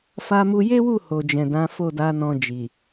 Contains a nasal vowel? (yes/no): yes